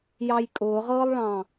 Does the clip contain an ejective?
yes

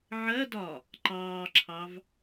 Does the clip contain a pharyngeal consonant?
yes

